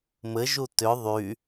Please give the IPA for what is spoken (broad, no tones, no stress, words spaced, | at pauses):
mɘʒu tʏ ðˤy